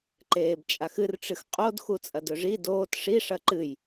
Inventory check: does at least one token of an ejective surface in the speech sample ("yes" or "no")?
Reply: yes